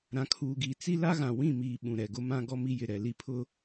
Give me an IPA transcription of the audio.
ɾã˨kʰuː˨ɡiː˨ t͡si˦la˦ɣã˨ wĩ˦˨miː˨ ɓũ˨ɾɛ˨ɡʊ˦mã˦ ɡɔ˦mi˦jɪ˨ ɾɛ˨li˦pʰʊ˦

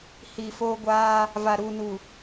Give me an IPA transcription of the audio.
hiː˨foː˦ ɡʷaː˦ | va˨ɾuː˨nu˨

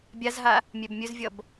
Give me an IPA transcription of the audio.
bʲazɦa | mʲɛbmʲɵzvʲʌb

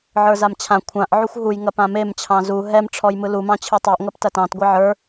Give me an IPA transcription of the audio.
ʕə˞zamt͡ɕʰã kʷʰãʔ ʕuxʷɦuj ŋɐpãmem t͡ɕʰɑ̃zu ɦɛm ʈ͡ʂʰɔjmɯlu mɑ̃t͡ɕʰɯtˤeʔ ŋɐptɐtɑ̃t ɡʷɑʕə˞

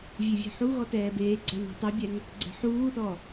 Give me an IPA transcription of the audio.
vʲevʲe̤ħuɣɔ tɛːbeːɡ͡ǀan i̤tˤɛbʲɛŋ | ɡ͡ǀɛ̤ħuːθɔ

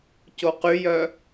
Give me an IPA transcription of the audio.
coqyjœ

